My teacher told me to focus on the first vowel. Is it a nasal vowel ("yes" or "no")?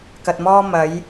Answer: no